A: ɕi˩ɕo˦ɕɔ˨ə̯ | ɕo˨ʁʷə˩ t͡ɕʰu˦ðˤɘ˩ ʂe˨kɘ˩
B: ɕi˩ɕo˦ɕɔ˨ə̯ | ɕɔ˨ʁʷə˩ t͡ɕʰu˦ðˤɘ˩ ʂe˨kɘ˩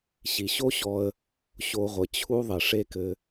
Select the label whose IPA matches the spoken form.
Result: A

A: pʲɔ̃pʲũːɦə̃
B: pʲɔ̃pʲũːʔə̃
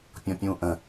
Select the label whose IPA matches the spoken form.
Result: B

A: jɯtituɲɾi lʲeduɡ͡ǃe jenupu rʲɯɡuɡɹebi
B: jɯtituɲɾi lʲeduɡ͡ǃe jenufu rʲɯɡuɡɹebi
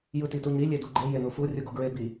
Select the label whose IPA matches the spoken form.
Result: B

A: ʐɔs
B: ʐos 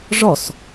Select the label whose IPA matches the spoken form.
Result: A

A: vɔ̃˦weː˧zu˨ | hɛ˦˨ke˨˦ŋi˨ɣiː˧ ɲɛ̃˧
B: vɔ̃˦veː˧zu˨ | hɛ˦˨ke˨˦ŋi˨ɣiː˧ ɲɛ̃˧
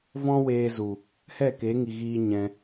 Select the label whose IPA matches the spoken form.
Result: A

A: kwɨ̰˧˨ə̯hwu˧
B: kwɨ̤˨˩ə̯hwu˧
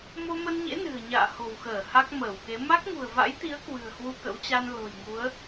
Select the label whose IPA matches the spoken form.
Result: B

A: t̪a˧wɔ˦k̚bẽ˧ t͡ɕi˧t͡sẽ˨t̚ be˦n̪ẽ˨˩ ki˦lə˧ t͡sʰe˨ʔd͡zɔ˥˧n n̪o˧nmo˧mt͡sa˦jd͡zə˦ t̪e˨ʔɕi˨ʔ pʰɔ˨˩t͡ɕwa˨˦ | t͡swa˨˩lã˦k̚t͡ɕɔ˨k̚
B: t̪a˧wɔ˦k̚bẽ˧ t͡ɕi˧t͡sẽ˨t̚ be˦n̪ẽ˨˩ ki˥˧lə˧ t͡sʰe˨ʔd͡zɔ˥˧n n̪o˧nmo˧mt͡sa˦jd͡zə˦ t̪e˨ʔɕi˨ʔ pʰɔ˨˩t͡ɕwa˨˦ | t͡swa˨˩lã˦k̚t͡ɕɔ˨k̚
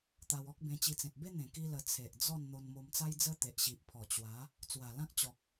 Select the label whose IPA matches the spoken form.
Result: A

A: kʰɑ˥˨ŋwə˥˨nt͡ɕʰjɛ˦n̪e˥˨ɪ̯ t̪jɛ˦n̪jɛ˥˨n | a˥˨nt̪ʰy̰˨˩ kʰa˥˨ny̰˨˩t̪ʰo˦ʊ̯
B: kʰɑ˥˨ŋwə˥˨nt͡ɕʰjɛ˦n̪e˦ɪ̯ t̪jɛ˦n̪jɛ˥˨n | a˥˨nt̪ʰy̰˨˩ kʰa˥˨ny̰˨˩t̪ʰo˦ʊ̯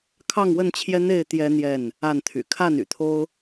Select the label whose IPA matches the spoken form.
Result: A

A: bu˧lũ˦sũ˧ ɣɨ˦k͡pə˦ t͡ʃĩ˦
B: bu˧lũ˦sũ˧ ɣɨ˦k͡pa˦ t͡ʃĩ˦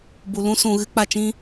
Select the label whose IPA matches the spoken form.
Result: B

